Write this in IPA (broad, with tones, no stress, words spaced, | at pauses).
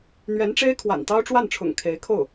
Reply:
n̪ɥɛ˧˥nʈ͡ʂe˥ɪ̯ kʰwa̰˨˩nt̪ɑ˥ʊ̯ʈ͡ʂwa˥˩nʈ͡ʂʰʊ̰˨˩ŋ kʰe˧˥ɪ̯kʰo˥˩ʊ̯